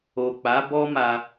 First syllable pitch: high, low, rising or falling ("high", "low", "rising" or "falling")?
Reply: low